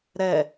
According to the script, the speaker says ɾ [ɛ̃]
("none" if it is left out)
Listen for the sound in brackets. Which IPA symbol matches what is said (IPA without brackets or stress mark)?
ɛ